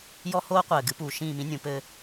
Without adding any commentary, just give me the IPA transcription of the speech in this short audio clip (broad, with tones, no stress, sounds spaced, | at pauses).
j ɔ˦ h oː˦ qʷ ɘː˨ ɡ ɨ˧ p uː˨ ʃ ĩː˦˨ m ĩ˦ nʲ ũ˨˦ p ɘː˧